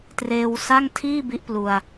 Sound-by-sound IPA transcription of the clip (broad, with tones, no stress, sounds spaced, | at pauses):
t r eː˧ w s a˥˩ ŋ tʰ iː˥˩ b i˦˥ ʔ p l u˧ a̯